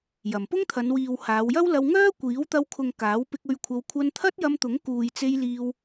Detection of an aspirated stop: present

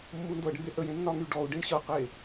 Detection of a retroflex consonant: present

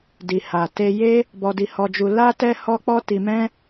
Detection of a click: absent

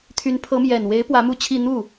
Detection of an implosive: absent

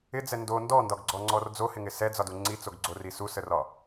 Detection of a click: present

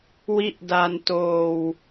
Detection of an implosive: absent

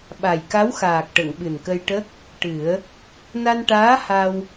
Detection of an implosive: present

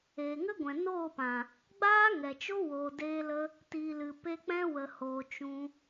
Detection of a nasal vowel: present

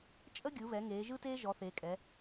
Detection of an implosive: absent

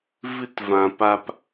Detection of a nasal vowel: present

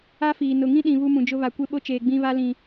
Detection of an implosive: present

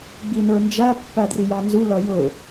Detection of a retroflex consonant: absent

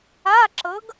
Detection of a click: present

